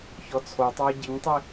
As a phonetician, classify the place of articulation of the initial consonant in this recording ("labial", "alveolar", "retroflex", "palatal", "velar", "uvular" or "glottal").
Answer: palatal